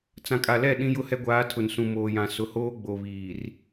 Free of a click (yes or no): yes